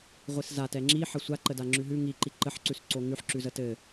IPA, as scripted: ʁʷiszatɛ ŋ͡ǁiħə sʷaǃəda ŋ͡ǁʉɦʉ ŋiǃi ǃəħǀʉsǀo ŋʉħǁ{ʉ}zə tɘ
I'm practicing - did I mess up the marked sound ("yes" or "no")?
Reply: no